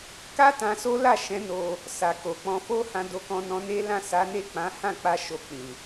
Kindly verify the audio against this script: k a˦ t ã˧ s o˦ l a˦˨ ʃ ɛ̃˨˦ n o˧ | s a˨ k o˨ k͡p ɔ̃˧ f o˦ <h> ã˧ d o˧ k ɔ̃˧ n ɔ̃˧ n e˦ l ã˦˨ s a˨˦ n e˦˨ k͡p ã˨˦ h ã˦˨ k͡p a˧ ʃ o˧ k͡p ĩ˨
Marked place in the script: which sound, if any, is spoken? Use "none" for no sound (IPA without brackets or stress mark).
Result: h